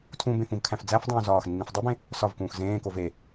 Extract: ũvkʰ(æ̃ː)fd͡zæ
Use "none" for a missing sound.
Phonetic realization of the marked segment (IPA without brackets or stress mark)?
æ̃